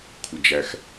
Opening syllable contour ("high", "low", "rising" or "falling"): low